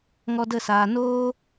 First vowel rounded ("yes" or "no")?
yes